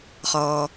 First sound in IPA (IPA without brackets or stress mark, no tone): χ